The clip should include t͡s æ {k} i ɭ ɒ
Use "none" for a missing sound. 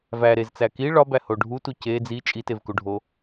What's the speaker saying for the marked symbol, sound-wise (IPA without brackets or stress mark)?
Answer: k